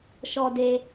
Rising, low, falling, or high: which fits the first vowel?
low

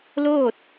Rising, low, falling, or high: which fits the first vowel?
falling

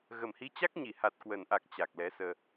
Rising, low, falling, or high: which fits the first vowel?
low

